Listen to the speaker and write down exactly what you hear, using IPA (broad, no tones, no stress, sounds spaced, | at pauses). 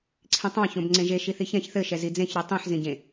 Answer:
ǀʰ ĩ tˤ ɑ̃ ç õ b ŋ͡ǀ ẽ ʒ e ʃ i θ i ç ɛ̃ ç θ ɘ ʃ ɛ z i d͡z ẽ ç ɾ i tˤ ĩ ħ z ĩ ɟ ẽ